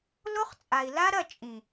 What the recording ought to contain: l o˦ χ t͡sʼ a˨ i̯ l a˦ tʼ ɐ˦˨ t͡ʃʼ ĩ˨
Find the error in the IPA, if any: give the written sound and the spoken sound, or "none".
tʼ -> ɾ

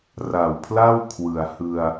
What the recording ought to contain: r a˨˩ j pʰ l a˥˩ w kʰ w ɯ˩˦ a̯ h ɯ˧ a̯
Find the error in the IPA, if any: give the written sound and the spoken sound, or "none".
j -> w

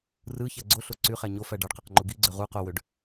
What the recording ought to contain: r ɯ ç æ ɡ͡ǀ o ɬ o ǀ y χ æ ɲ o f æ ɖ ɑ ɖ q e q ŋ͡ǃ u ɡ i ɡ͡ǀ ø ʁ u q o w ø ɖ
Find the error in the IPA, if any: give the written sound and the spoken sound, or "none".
none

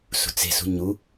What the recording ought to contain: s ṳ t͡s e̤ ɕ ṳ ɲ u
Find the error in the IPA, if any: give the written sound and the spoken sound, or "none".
ɕ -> s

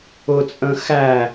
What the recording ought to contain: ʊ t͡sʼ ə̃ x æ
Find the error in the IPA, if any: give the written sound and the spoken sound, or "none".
none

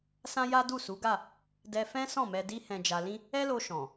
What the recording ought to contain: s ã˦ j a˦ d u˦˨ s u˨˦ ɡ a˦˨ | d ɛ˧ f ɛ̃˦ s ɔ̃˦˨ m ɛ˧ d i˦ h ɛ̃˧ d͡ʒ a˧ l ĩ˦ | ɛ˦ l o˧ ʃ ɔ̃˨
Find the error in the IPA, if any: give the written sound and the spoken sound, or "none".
none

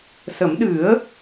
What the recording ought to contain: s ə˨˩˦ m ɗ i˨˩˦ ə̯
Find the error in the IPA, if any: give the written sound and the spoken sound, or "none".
i˨˩˦ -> ɨ˨˩˦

